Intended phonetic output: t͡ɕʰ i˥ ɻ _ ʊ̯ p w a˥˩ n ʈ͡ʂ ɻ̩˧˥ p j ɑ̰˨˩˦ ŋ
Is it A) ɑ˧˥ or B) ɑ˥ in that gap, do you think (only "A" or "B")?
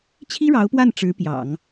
A